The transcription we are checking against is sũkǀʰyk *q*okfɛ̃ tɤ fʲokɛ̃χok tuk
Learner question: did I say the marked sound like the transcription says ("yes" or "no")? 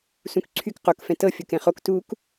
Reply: yes